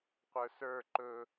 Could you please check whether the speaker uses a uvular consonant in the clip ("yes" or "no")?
yes